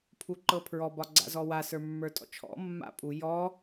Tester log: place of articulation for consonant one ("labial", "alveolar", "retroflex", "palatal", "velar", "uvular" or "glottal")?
labial